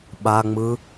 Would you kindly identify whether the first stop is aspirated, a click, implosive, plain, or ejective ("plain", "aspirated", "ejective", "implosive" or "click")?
implosive